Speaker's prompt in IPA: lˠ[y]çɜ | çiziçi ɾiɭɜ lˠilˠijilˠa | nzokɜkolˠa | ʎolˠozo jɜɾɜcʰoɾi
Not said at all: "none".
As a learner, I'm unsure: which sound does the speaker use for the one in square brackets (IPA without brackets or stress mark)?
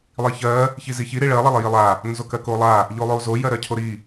i